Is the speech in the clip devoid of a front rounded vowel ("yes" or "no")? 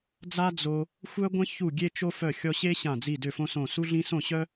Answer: no